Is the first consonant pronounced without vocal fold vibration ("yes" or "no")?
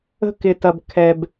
yes